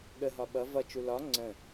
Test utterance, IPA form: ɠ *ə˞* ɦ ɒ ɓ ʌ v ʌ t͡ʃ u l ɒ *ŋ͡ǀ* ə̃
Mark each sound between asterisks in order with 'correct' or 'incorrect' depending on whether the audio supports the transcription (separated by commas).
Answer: incorrect, correct